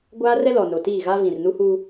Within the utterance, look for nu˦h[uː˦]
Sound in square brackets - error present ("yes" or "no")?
no